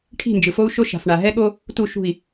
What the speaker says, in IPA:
ʈʰi̤˦˨nd͡ʒɯ˨fo˦u̯ʃo˦ ʃa̤˨fɳa˨ ɦɛ˦ɠo˦ | tu˦˨ʃṳ˦˨i̯

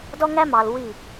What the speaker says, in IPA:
dɔ˦ŋæ˦mɑ˨l wi˦˨

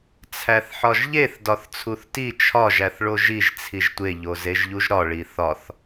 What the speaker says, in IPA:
t͡sʰæθħɒʒʎeθ dɒθt͡sʰuθti t͡ʃʰɒʒ æθɭoʒiʒ t͡sʰiʒtʷe ʎozeʒʎuʒɾɒ ɭiθɒθ

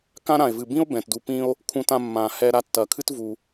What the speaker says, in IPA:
kã˦ ɾã˨e̯vɨ˨bĩ˦o̯ bɛ̃˨tdu˧pːĩ˦o̯ | kʰũ˧tã˧ mːã˨hɛ˧ ɾa˧tːɐ˨kʰɨ˦t vu˧

